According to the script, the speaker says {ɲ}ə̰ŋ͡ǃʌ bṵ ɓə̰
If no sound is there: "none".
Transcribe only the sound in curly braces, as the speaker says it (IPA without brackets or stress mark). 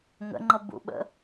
ŋ